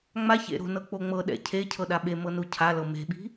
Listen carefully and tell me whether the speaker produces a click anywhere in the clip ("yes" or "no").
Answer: no